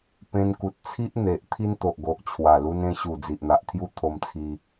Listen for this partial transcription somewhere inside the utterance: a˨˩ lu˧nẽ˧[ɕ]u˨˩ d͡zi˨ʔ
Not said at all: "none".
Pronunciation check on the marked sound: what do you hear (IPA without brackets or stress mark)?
ɕ